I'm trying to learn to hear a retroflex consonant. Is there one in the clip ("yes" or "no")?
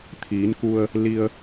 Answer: no